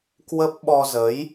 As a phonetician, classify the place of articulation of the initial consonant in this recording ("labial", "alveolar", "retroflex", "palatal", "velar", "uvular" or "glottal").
velar